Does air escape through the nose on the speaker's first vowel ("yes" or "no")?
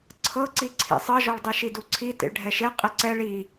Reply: no